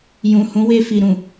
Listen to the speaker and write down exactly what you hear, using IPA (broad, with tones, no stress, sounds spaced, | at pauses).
j ũ˨ h ũ˨˦ w e˧ f i˨ ɾ ũ˨